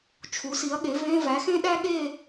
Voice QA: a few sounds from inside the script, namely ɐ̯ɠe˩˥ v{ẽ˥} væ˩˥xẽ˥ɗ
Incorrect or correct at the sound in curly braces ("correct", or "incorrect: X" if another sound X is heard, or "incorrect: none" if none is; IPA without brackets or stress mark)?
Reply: incorrect: ẽ˧˥˧